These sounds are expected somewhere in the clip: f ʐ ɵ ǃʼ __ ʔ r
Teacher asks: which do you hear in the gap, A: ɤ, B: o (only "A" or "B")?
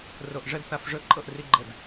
A